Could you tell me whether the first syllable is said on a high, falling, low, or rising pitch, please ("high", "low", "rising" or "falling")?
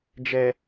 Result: low